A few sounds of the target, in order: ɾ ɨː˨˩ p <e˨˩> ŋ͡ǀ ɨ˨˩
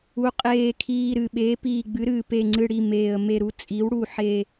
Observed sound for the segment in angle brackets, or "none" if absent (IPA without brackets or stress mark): e˨˩